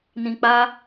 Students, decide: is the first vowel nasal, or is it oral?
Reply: nasal